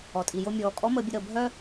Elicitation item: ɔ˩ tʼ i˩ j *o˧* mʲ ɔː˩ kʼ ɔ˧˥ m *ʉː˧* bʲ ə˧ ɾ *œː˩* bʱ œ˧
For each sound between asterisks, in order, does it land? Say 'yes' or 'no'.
yes, no, no

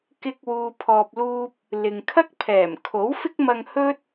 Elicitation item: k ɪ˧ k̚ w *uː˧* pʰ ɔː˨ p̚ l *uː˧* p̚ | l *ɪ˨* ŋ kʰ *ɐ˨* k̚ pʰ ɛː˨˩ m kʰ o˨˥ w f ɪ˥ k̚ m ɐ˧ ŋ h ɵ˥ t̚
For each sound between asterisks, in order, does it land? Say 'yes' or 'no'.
no, yes, yes, no

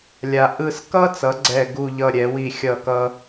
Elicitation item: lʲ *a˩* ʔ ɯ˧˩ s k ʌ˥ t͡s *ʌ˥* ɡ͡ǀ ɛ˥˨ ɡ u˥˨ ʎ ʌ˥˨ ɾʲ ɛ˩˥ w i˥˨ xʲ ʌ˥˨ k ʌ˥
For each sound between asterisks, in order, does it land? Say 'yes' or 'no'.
yes, no

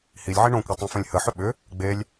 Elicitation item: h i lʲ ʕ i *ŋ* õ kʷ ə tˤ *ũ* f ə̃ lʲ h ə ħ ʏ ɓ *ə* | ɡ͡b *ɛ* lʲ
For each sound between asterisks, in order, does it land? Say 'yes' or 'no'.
no, yes, no, no

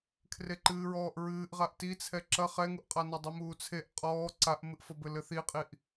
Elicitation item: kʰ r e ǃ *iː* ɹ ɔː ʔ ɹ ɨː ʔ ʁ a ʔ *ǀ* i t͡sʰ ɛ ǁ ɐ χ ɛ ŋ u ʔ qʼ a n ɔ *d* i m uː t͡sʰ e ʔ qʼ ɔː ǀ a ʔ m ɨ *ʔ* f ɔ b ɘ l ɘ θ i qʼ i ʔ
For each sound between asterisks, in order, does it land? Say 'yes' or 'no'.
no, no, no, yes

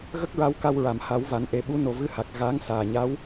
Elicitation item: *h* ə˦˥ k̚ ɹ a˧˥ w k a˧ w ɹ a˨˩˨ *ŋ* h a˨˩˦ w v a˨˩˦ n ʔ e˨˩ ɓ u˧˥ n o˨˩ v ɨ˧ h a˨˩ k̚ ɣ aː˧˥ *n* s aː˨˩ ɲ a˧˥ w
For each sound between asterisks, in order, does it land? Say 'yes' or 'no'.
no, no, no

